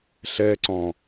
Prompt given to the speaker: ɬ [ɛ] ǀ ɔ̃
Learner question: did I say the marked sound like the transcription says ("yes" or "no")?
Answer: yes